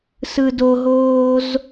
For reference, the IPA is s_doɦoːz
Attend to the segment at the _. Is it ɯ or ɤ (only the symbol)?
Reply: ɯ